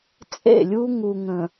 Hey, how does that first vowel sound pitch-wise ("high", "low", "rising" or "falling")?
falling